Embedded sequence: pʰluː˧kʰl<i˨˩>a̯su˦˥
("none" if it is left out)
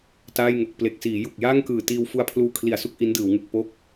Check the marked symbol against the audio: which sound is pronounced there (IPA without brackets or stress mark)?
i˨˩